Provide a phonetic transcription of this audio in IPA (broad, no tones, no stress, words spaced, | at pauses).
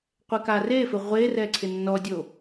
qʷɛkarefɪ ʁʷerɛ ǀʰɪnːɔdʲo